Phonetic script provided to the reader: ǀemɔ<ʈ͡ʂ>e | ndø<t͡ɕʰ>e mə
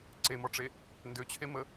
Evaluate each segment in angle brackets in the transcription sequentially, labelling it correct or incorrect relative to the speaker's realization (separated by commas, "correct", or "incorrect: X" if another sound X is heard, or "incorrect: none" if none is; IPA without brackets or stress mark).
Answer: correct, correct